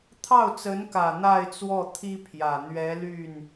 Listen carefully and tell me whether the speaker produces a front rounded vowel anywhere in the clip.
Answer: yes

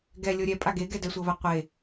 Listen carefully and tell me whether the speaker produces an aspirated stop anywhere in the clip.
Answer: no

